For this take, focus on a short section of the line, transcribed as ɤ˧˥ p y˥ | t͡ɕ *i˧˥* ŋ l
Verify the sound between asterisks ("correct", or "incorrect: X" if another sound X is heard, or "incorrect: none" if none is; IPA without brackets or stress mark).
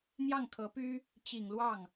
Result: incorrect: i˨˩